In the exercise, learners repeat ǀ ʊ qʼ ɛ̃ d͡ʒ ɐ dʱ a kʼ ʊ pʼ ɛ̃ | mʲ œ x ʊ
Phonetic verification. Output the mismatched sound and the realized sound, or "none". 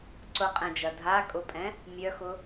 none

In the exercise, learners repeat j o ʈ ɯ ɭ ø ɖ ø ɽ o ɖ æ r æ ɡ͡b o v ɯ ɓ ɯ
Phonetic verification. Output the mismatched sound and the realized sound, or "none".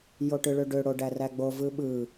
none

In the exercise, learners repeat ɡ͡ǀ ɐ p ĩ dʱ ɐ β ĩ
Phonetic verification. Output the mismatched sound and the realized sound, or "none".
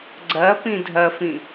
β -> f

